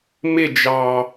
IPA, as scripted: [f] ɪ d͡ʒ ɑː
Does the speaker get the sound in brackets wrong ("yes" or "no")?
yes